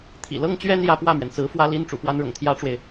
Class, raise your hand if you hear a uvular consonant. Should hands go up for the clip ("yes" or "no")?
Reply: no